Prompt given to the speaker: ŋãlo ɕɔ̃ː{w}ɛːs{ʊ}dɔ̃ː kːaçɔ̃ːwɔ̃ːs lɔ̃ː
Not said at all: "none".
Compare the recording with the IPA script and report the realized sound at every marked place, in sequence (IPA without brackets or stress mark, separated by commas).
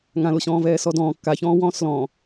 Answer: v, ɔ